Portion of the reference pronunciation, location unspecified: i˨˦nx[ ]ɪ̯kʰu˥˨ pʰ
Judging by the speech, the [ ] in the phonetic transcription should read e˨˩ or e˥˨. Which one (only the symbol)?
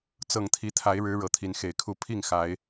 e˨˩